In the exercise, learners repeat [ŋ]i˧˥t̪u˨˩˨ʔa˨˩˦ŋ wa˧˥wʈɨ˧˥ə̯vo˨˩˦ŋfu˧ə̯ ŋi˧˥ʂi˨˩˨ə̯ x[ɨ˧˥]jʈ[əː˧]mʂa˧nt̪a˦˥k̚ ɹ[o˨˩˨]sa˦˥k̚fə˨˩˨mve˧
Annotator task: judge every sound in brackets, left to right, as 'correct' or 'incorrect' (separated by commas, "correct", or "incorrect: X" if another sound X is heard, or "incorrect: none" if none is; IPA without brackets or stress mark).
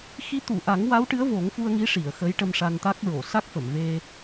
incorrect: x, incorrect: ə˧˥, incorrect: ə˧, correct